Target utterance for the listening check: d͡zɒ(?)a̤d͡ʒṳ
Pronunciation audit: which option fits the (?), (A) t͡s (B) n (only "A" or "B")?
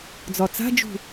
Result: A